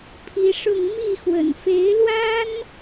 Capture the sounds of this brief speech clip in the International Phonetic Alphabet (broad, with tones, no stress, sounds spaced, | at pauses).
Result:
pʰ i˧˥ ʂ ʊ˥˧ ŋ m i˥˩ x w ə̰˨˩ n f e˧˥ ɪ̯ l w a˥ n